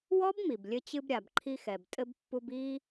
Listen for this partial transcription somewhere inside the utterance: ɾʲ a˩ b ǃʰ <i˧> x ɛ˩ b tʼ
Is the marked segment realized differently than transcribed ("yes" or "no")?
no